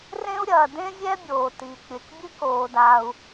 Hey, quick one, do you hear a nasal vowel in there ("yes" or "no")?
yes